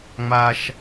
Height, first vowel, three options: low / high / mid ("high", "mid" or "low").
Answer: low